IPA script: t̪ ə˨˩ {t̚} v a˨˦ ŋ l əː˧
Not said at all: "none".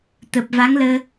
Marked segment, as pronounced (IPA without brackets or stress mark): p̚